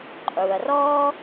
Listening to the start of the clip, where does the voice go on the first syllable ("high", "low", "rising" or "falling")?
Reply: low